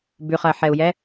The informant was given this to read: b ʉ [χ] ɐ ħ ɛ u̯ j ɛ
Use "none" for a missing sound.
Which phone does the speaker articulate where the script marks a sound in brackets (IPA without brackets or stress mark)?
χ